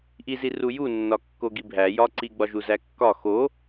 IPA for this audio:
ʔ i z i r u j u nː ɒ kː o ɡ i bʱ æ j ɒ ǀ i ɡ͡b ɒ ʒ u z æ kː ɒ x o

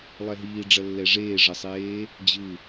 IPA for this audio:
lˠ ɛ ɦ iː ɖ͡ʐ ʌ lː ɛ ʐ eː ʐ ʌ sˤ eː | d͡ʑ ɯ

